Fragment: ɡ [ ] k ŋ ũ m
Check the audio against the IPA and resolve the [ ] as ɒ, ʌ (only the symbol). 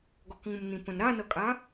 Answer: ɒ